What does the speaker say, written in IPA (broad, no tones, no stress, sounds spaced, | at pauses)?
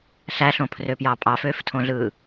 ɬ æ ɬ õ pʰ r ø p j ɑ pʼ ɑ f øː f tʰ õ ɮ ɯː